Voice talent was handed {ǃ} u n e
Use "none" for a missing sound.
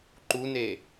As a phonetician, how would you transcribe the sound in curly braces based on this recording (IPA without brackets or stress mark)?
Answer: ǃ